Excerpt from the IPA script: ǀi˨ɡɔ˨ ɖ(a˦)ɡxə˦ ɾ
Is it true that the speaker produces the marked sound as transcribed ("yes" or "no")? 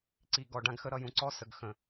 no